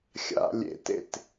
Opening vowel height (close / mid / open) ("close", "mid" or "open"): open